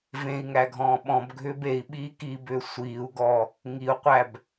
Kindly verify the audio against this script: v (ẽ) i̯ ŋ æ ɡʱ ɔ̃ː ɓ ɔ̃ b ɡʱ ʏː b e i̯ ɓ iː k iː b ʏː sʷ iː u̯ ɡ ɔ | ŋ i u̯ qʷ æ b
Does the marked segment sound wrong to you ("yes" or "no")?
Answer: no